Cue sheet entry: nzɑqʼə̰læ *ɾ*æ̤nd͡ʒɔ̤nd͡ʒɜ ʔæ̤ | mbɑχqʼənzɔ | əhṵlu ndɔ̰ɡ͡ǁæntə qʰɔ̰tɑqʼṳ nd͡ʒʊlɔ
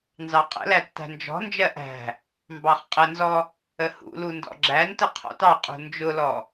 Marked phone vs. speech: incorrect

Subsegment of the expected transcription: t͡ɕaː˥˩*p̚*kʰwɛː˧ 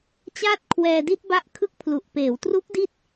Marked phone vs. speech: incorrect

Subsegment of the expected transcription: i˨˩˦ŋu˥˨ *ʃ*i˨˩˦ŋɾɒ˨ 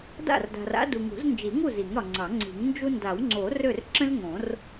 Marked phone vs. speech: incorrect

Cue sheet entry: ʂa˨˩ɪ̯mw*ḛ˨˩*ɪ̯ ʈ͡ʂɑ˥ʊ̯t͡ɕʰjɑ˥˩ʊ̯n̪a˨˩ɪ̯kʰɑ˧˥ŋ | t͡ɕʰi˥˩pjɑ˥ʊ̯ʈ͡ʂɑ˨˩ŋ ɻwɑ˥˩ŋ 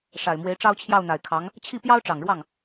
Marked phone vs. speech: incorrect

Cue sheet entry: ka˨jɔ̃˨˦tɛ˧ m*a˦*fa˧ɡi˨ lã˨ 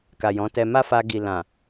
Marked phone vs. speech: correct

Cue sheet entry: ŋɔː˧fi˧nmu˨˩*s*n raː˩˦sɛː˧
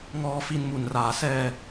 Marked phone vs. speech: incorrect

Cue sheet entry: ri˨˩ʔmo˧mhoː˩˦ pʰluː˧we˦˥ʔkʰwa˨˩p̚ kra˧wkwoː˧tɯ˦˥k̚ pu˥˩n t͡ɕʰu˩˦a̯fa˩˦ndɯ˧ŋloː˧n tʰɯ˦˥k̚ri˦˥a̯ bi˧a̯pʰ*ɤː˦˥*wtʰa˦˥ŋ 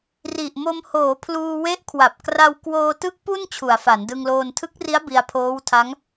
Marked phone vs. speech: incorrect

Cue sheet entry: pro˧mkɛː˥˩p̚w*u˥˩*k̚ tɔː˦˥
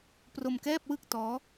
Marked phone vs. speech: incorrect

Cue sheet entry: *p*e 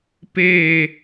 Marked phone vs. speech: correct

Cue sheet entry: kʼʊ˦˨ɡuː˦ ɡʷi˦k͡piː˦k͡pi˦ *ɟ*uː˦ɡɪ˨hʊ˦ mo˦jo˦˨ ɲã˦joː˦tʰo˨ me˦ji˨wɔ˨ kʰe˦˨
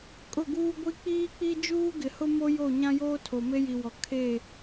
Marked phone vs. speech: incorrect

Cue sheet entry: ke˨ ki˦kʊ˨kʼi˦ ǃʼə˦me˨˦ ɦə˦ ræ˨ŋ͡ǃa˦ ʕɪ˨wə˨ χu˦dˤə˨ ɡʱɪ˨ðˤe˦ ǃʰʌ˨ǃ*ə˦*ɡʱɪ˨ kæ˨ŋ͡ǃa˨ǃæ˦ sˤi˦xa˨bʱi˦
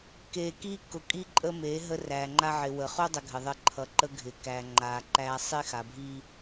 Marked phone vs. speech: correct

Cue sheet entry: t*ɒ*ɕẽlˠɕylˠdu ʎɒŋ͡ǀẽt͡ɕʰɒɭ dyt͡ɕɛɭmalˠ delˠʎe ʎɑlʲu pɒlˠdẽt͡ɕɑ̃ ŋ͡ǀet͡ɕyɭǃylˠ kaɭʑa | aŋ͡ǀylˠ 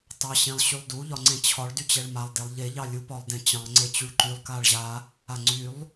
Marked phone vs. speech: incorrect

